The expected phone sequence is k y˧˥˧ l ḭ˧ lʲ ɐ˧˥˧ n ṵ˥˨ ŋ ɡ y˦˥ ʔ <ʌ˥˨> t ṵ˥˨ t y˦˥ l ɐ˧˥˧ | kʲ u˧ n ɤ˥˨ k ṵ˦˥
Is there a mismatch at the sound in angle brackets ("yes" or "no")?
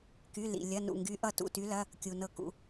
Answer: no